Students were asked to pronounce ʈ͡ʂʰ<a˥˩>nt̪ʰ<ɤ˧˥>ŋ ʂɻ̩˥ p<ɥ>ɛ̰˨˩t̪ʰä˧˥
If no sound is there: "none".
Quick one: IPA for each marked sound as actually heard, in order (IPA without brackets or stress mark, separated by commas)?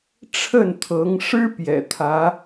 ə˥˩, ɤ˧˥, j